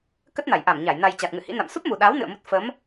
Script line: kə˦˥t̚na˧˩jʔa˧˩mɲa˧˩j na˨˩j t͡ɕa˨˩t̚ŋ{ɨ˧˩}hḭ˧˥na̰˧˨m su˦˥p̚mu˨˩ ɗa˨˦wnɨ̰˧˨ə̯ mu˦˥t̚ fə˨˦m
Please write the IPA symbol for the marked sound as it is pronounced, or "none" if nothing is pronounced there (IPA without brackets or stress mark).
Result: ɨ̰˧˨